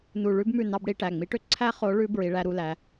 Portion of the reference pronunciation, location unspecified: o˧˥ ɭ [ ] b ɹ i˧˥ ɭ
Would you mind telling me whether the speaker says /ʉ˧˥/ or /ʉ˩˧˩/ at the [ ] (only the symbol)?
ʉ˧˥